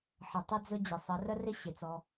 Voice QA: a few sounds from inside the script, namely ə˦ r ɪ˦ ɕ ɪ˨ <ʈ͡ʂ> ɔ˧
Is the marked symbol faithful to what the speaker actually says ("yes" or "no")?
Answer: no